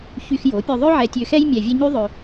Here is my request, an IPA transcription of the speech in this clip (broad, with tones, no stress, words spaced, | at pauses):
çy˧xjo˩˥pʲø˧ ðˤø˥ʕɛ˧tʲø˧xɛ˥j mʲɛ˧vʲɛ˥ ɲy˥ðˤø˧